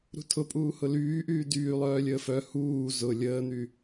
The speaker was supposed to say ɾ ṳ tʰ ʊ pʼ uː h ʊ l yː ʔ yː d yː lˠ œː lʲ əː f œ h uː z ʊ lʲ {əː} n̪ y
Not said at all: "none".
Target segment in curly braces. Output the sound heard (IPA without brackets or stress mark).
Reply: əː